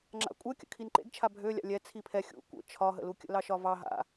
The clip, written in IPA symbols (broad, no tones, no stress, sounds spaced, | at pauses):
ŋ͡ǁ a̰ kʷʼ ɛ kʲ ə̰ kʰ i n ǃ ḛ ɡ t͡ʃʰ a bʱ ø lʲ a̰ lʲ ɛ t͡sʰ i pʰ ɛ xʲ ṵ kʷ ə̰ t͡ʃʰ ɒ ɦ ə̰ l u kʲ ə̰ l ɑ ʃ ɒ v ɑ ɦ a̰